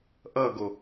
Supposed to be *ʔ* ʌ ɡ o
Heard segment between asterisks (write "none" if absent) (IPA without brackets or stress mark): ʔ